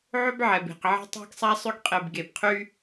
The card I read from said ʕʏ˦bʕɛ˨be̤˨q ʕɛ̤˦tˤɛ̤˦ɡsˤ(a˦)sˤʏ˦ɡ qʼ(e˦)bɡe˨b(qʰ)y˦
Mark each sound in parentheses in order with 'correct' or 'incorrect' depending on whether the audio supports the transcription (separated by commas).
correct, incorrect, correct